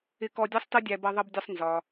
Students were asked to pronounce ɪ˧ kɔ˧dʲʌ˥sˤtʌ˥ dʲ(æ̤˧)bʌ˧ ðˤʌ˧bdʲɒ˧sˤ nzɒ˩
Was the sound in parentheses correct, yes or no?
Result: no